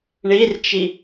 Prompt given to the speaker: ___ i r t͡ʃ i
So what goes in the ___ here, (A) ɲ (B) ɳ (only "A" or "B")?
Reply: B